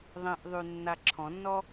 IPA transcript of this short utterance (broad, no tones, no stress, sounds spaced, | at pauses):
ðˤ ẽ ʔ ðˤ y nː a ǁʰ ɔ̃ nː ɔ